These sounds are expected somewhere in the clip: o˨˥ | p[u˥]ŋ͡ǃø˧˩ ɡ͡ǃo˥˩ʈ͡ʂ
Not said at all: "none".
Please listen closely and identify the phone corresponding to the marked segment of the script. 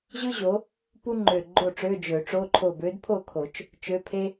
u˥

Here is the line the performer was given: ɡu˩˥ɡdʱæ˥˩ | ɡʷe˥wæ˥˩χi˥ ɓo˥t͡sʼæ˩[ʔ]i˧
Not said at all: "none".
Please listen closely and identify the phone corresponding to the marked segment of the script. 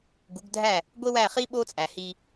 h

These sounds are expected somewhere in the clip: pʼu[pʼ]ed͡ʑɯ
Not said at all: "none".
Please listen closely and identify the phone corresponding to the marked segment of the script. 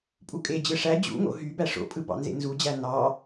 kʼ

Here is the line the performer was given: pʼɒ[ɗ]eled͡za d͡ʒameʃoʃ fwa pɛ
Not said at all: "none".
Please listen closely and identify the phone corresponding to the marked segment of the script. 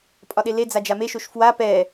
ɗ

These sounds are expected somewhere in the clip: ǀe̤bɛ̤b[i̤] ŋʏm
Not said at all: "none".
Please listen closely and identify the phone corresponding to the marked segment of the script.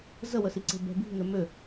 i̤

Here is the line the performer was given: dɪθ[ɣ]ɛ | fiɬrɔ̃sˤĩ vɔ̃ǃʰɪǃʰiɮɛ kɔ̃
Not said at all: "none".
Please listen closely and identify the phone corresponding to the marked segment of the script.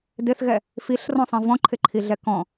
ɣ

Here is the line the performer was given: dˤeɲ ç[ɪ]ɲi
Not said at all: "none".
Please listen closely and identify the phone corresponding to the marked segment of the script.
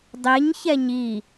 ɛ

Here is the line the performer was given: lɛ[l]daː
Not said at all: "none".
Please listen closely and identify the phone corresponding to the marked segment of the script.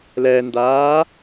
n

